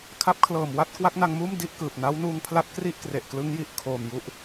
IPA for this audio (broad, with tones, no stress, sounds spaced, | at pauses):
kʰ a˦˥ p̚ kʰ l ɤː˨˩ m w a˥˩ t̚ k w a˦˥ k̚ n a˧ ŋ m uː˥˩ m d i˥˩ ʔ k ɯː˨˩ p̚ n a˦˥ w n uː˧ ŋ pʰ l a˦˥ t̚ k r i˥˩ ʔ k r e˨˩ ʔ k l ɯ˦˥ ŋ j i˨˩ ʔ kʰ oː˨˩ m j u˦˥ ʔ